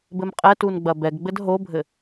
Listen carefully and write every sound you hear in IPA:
b ɘ m qʼ ɛ t u n ɡ͡b ɐ b ɛ ɡ ɡ͡b ɘ d ɦ o bʱ ɘ

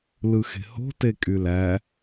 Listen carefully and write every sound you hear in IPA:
l ɯ x e̤ h o̤ t e kʼ y l æ

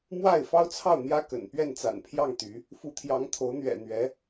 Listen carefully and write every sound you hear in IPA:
m w a˥˩ ɪ̯ f ɑ˥ ʊ̯ t͡sʰ ɑ˥˩ ʊ̯ n̪ j ä˥ k ə̰˨˩ n p ɥ ɛ˥˩ n t͡s a̰˨˩ n pʰ j ɑ˥˩ ŋ t̪ y˧˥ | f u˧˥ t̪ʰ j ɑ˧˥ ŋ t̪ʰ o˧˥ ʊ̯ n̪ ɥ ɛ̰˨˩ n̪ ɥ ɛ˧˥

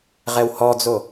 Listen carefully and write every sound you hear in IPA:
ʁ ɛ w h ɔ d͡z o

